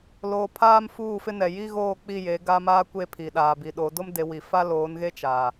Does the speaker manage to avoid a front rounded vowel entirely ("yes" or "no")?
yes